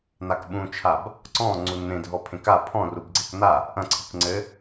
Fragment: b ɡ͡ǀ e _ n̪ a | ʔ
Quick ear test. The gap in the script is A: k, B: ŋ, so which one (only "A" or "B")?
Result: A